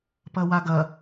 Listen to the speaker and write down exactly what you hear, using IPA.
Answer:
p ɐ w a ɡ ɐ

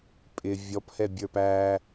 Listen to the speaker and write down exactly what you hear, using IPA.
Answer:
pʼ ɪ vʲ ɔ p h ɛ bʲ ə˞ p æ

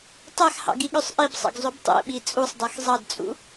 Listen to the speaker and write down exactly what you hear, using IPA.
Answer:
tˤ æ x h ɑ̰ ɡ i ɠ ø sˤ ʔ i b sˤ ɑ̰ ɡ zˤ ø b tˤ ḛ ɓ i t͡sʼ u sˤ dˤ æ x zˤ ɑ d t͡sʼ ṵ

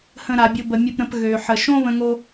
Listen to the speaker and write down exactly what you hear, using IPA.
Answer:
h ə̃˨ ɾ a˩ bʲ ʊ˨ b ə˩ mʲ ʊ˨ p ɾ ə̃˨ p ɣ ø˩ ħ ə˩ ʃ õ˦ β ə̃˦ ŋ o˥

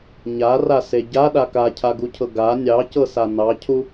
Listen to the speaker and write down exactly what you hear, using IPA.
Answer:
ɲ a r a s e ɟ a ɗ a k a cʰ a ɡ u cʰ ɤ ɡ a nʲ ɑ c ɤ s a n ɑ cʰ u

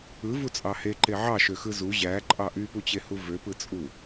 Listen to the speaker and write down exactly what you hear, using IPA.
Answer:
ɯ v u t͡sʼ ɑ h e ǃ e ʕ ɑ ʃ ø x ɯ z u ʑ æ ǃʼ ɑ ʔ y p u t͡ɕ e h u v ø p ɯ t͡sʼ u

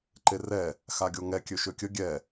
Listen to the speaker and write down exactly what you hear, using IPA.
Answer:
ǃ e r ɛ | x a ɡʲ o ŋ ɛ kʲ ø ʃ ø kʲ ə ɡʲ ɛ

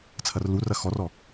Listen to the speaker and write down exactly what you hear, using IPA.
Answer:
t͡sʰ ɐ r l u r ɐ x ɔ r ɔ

